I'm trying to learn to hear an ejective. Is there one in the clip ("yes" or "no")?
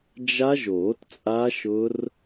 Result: yes